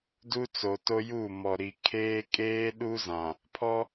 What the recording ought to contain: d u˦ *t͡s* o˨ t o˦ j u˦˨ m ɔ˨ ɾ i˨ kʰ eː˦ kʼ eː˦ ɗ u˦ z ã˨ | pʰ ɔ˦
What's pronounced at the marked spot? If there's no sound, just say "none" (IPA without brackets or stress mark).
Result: t͡s